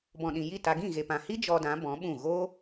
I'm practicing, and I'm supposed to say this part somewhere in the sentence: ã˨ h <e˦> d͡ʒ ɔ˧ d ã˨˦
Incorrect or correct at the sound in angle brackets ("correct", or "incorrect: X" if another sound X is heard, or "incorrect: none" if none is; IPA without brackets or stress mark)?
incorrect: i˦